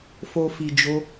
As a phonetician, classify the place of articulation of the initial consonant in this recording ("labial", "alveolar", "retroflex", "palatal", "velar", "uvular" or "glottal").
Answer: labial